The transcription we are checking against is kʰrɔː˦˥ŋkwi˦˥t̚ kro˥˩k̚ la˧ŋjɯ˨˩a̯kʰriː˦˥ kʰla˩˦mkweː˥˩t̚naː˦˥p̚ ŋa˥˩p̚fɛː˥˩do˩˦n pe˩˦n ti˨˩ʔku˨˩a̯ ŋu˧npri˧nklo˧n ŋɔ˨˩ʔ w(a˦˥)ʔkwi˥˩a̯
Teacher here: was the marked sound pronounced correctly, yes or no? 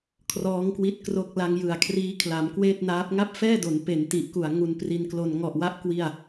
no